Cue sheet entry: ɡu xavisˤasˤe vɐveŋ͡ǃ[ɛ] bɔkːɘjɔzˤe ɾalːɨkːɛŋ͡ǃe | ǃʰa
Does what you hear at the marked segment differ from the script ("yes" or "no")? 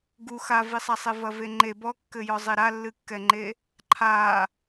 yes